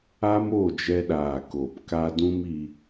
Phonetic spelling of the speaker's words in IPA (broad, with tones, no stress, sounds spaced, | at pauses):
a˦ m o˦˨ d͡ʒ ɛ˧ ɗ aː˨ k o˨ p k a˧ d ũ˦ m i˧